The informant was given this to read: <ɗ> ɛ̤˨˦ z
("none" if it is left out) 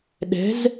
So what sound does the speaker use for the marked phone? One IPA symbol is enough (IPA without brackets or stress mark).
ɗ